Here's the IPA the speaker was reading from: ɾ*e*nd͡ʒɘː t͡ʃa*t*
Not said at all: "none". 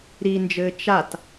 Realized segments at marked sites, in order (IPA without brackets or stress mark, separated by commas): i, t